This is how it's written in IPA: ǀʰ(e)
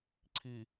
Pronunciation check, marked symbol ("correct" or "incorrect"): incorrect